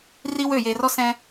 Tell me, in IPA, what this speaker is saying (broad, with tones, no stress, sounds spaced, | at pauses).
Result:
r i˦ w ø˦˨ j e˨ r ɔ˦ s ɛ̃˦